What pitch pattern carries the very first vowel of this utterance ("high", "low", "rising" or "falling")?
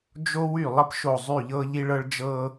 high